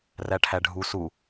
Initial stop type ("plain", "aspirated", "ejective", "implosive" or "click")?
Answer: aspirated